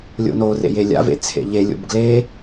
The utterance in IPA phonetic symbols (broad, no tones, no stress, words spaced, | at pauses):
lʲo̰norḛ jelʲa̰vḛ t͡sʰḛʎelʲo̰b ɡle